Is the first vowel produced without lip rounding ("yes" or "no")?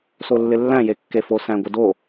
no